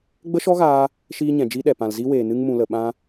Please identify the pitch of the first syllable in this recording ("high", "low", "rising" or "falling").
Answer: high